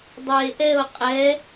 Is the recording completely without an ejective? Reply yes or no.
no